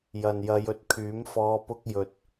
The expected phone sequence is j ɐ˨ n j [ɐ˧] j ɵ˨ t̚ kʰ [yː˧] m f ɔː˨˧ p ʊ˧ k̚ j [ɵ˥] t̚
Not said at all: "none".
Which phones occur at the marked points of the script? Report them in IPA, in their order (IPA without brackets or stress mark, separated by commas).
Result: ɐ˨˧, yː˨˥, ɵ˨